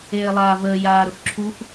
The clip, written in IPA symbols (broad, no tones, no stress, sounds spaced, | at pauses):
eː lˠ aː v əː j aː ɾ ʊ x ǁʰ u x